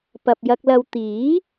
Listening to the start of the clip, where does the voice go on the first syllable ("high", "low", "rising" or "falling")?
low